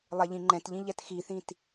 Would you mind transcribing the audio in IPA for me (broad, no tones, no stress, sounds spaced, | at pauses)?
lˠ ɛ ʎ ĩ ŋ͡ǃ ɛ̃ t ʎ ĩ ʎ ɛ t x i θ ĩ t